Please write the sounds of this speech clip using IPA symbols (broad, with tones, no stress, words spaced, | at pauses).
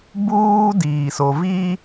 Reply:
buː˦diː˨ so˨vi˦